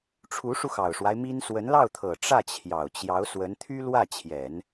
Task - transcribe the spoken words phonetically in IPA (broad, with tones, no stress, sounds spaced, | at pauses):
ʈ͡ʂʰ u˧˥ ʂ u˧ x ɑ˨˩ ʊ̯ ʂ w a˦ ɪ̯ m i˥ n s w ə˧˥ n l ɑ˥˩ ʊ̯ t̪ʰ ɤ˨˩ ʈ͡ʂ ä˥˩ t͡ɕʰ j ɑ˨˩ ʊ̯ t͡ɕ j ɑ˧˥ ʊ̯ s w ə˧˥ n t̪ʰ y˥ l w ä˥˩ t͡ɕʰ j ɛ˨˩˦ n